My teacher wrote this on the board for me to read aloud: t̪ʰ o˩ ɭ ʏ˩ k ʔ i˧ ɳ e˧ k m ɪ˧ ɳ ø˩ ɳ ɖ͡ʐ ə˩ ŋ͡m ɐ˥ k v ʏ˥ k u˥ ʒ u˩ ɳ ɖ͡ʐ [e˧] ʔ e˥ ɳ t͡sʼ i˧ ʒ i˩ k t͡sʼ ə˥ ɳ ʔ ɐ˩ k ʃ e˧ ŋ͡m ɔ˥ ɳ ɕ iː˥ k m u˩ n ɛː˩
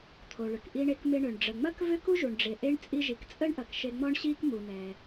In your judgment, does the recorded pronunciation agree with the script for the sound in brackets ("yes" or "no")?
no